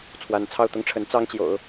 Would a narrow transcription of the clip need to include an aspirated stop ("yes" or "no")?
yes